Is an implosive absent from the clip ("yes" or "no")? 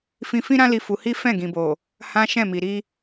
yes